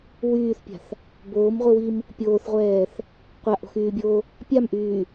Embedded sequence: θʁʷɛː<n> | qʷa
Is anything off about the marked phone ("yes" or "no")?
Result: yes